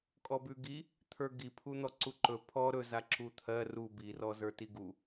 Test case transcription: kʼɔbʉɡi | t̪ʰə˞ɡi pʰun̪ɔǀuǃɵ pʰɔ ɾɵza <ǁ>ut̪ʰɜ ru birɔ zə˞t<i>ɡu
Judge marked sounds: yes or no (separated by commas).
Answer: yes, yes